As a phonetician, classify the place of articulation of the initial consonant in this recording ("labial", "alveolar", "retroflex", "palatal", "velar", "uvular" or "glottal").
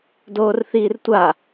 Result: alveolar